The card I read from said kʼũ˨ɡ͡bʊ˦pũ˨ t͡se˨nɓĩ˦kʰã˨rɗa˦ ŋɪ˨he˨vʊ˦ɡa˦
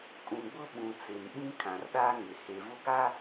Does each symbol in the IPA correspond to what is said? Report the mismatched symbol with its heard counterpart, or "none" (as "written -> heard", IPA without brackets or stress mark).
p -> ɓ